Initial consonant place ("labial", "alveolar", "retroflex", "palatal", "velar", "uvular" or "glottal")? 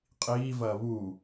uvular